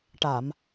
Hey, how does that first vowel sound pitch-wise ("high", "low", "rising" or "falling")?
low